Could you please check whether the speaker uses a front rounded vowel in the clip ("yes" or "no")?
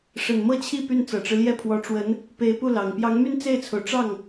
yes